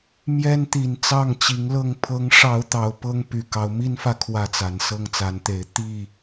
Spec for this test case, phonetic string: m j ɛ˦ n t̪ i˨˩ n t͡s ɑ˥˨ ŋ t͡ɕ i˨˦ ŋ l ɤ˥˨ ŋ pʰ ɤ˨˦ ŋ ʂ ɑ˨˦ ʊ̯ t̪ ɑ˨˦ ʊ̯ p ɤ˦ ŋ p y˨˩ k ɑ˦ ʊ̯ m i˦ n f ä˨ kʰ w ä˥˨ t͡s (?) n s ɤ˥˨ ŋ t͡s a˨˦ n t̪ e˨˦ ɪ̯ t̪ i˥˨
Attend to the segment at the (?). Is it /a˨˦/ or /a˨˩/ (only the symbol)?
a˨˩